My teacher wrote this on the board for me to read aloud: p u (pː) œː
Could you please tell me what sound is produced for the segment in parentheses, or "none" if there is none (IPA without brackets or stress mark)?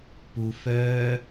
f